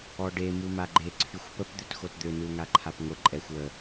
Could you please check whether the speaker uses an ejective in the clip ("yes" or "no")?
yes